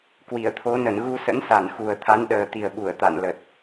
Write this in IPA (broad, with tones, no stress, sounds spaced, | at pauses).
k w i˧˩ ə̯ t̪ʰ o˨˦ n ə˧˩ n ɣ u˧ s ə̰˧˥ n s a˧˩ n x u˨˩ ə̯ t̪ʰ a˨˦ n ɗ əː˨˩ t̪ i˨˩ ə̯ ɓ u˧˩ ə̯ t̪ a̰˧˨ n l ə˨˩ t̚